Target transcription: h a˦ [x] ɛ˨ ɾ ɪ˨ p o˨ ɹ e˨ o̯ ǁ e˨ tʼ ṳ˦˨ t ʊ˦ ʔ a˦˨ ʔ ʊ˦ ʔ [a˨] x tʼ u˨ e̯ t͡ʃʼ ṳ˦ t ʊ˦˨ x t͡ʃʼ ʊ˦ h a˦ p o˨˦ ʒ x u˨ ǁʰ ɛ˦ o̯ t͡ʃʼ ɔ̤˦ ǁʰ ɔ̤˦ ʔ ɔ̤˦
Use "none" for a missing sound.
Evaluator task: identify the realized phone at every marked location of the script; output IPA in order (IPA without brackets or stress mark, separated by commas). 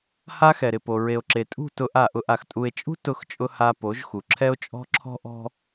x, a˨